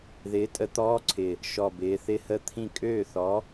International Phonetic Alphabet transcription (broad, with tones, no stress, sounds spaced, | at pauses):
ð ɪː˨˥ tʼ ə˨˥ t̪ ɔː˧˥˧ ǀʰ ɪ˨˩ | ʃ ɔ˨˩ b ɪː˩˧ θ ɪ˧˥˧ h ə˦˥ t̪ʰ ĩ˥˩ kʼ øː˥˩ θ ɔ˨˥